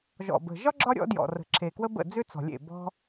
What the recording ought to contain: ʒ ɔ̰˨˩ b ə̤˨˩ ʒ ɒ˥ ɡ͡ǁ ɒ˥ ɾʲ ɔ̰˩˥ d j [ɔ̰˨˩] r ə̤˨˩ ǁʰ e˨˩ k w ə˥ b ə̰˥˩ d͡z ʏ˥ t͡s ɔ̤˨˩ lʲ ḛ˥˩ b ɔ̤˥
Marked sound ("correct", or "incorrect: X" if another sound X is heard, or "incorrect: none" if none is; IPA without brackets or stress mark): correct